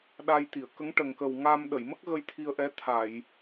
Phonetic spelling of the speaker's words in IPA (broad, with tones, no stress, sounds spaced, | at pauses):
ɗ a˧ j t̪ i˨˩˨ ə̯ k ə˧˥ ŋ ʈ ə˨˩ ŋ k ə˨˩ w ŋ a˧ m ɗ ə˨˩˨ j m ə˦˥ k̚ ɣ ə˧ j t̪ʰ i˧ ə̯ ʔ ɛ˧˥ t̪ʰ a˨˩˨ j